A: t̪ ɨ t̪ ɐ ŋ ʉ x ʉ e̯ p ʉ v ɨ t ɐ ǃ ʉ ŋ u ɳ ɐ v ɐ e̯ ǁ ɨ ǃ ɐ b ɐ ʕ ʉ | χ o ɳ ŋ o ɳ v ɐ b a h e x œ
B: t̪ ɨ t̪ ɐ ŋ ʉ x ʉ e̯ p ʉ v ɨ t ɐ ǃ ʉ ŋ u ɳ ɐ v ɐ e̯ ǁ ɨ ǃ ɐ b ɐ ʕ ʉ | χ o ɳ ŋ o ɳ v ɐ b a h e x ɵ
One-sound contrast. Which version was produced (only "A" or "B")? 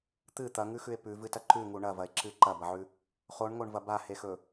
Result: B